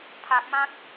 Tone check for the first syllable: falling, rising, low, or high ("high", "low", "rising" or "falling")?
low